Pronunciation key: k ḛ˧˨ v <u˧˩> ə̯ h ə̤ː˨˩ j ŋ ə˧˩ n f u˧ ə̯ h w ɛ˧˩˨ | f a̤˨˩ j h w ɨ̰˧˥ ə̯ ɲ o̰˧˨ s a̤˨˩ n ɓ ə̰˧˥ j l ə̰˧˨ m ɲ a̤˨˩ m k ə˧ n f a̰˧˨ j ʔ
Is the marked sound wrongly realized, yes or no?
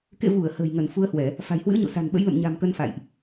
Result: no